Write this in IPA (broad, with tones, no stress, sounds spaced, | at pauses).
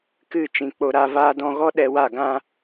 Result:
k ɨ˦˨ t͡ʃ ĩ˨ k͡p o˧ ɾ a˧ v aː˦ d ɔ̃˧ ɣ ɔ˦ ɗ ɛ˧ w a˦˨ ɡ ã˦